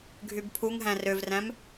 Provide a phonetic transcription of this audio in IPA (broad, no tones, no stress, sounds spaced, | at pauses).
ɡʱ y b pʰ u ŋ ɦ æ̃ r ø v r æ̃ m